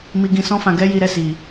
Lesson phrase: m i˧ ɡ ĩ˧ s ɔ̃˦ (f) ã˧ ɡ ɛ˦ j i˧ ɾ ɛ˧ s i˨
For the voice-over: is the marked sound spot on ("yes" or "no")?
yes